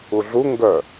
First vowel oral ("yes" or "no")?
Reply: yes